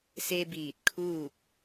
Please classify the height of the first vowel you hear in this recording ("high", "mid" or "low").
mid